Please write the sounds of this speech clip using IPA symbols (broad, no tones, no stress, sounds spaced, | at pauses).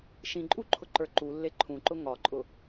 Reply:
ʃ ĩ ǃʼ u ǃʰ ʊ ǃ ə˞ ǃ u lː e ǃʰ ũ ǃ ʊ ŋ ɒ ǃʼ ʊ